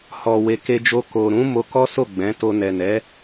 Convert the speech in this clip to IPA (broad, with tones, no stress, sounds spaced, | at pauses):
h ɔ˨ w e˨ k e˧ d͡ʒ o˧ k o˨ ɾ ũ˨˦ m o˧ k ɔ˦ s o˦˨ ɡ͡b ɛ̃˨˦ t o˧ n ɛ˨ n ɛ˨˦